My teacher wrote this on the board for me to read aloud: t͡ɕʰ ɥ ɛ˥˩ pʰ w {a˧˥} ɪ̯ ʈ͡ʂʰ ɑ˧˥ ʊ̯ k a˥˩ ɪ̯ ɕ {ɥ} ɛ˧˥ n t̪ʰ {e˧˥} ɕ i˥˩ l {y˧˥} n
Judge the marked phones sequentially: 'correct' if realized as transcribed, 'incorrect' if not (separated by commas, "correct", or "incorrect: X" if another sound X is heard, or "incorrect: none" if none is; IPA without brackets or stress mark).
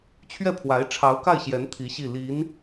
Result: correct, incorrect: j, incorrect: i˧˥, incorrect: i˧˥